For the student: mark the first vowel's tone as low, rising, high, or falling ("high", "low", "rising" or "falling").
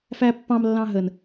low